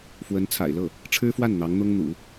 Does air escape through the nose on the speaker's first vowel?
no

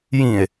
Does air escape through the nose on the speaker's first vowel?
yes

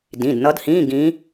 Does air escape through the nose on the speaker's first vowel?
yes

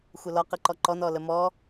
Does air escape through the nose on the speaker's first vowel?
no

